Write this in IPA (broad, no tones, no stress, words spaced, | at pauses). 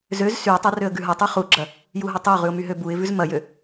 zøz syʊ̯tˤa røə̯ɡʉɦɐtˤʉ χuɡ͡ǁɐ | juɦɐtˤəʊ̯ʁʉʊ̯ myɦøbuɪ̯vʉz mɐjø